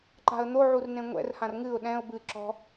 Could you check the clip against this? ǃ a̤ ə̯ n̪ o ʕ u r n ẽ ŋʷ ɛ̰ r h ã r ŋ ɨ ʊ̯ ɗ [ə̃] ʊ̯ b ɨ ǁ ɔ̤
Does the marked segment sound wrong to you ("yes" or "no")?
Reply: yes